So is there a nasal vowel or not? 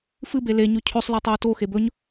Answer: no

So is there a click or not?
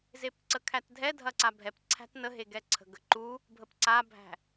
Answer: yes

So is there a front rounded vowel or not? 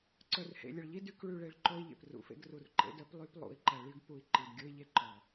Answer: yes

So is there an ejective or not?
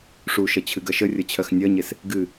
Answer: no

